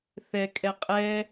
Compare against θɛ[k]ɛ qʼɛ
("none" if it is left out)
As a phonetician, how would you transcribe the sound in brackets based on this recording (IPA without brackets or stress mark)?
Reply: kʼ